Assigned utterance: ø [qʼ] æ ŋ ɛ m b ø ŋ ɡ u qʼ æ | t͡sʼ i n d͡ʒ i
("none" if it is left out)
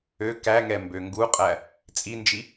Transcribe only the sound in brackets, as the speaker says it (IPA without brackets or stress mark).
k